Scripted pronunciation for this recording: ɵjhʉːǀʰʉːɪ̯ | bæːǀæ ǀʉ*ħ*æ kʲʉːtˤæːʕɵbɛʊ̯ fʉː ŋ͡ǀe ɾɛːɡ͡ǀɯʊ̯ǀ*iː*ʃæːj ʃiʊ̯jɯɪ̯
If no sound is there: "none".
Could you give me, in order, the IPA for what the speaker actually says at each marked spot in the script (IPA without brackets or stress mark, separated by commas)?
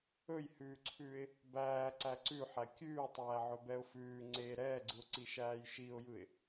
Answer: ħ, i